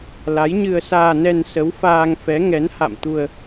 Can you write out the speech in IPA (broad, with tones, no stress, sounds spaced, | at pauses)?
l a˨˦ j ɲ ɨ˧ ə̯ s aː˧ n ɛ˧ n s ə˨˦ w f aː˧ ŋ f ɛ˨˦ ŋ ɛ˨˦ n h a̰˧˨ m t̪ u˧ ə̯